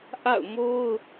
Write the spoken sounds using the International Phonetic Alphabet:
ʔ a̰˦˨ ʊ̯ m o˦ ʊ̯

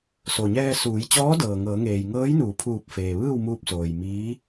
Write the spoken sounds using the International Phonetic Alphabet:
s o˩ ɲ ɛː˧ s uː˩˧ j t͡ɕ ɔː˧˥ d ɤː˩ ŋ ɤː˩˧ ŋ eː˩ j ŋ ɤː˧˥ j n uː˩˧ pʰ uː˧˩ p̚ f eː˩ ʋ ɯː˥˨ w m uː˧ p̚ s oː˩ j m iː˧˥

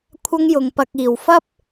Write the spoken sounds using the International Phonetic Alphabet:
kʷʰ ɐ˥ ŋ j ʊ˧ ŋ p ɐ˧ k̚ iː˨ w f ɐ˥ p̚

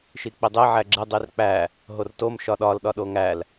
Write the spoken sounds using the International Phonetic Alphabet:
ʃ i k͡p i dˤ e ʕ æ ɡ͡ǁ e dˤ i r k͡p æ | ɦ o r t o m ʃ ɒ ɗ ɒ l ɗ ɒ ɗ o ŋ æ l

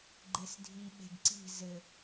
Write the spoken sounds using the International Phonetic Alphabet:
ɡ͡ǃ e s dʱ i ɓ e̤ ɡ ǀ i̤ z ɘ

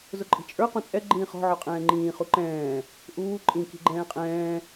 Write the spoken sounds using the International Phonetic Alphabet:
z ʊ ǃʼ i̤ t͡ʃʼ ə˞ q ũ t͡sʼ ɛ ɡ͡ǃ ĩː χ ɔ̤ ʕ ɔ qʼ ɛ̃ː ŋ͡ǃ ĩː χ u ǃ ɛ̃ː | ʔ uː ǃʼ ĩ k i̤ ɡ͡ǃ ɛ̃ː qʼ ɛ̃ː

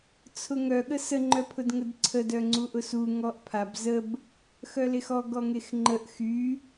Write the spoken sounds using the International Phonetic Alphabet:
t͡sʰ ʊ ŋ œ ɠ ə s ə ŋ͡ǃ œ pʰ ʊ d ŋ ə d ǀʰ ə d œ ŋ͡ǀ u ʔ ʊ s u ŋ ɔ ʔ pʰ a b z ə b | x œ l e x ɔ ɡ ɔ ŋ e x ŋ͡ǃ ə ʔ x y

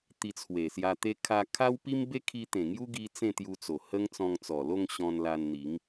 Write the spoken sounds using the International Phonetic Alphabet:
t̪ i˧ t͡sʰ w e˨˩ s j a˧ t̪ e˦ kʰ a˧ kʰ a˦ w p i˦ m b e˦ kʰ i˧ t̪ ẽ˨˩ ŋ j u˦ ɡ i˧ t͡s ẽ˥˧ t̪ j u˧ t͡s o˨˩ h ə˦ ŋ t͡s ɔ̃˧ ŋ t͡s ɔ˨˩ l o˥˧ ŋ ɕ ɔ̃˧ n l a˧ n n̪ i˨˦ ŋ

